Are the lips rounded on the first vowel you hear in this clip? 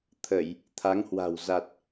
no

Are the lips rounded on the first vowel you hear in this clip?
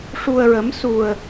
yes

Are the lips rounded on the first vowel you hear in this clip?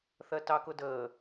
no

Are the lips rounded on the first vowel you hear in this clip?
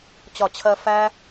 yes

